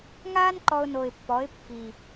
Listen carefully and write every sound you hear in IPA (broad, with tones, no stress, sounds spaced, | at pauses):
ŋ aː˥ n ǃ ɔ˧ ʊ̯ n o˨˩ ɪ̯ pː ɔ˩˥ ɪ̯ pː i˨˩